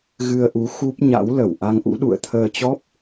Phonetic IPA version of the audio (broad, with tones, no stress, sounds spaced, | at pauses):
ɣ ɨ˧ ə̯ ʔ u˨˦ x u˦˥ p̚ ɲ a̰˧˥ w l ə˧˩ w ʔ a˧ ŋ ʔ ṵ˧˥ ɗ ṵ˧˨ ə̯ t̪ʰ əː˧ t͡ɕ ɔ˦˥ p̚